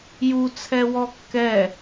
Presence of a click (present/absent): absent